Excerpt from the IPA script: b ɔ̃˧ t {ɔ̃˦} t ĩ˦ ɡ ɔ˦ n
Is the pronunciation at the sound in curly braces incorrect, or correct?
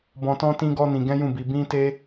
correct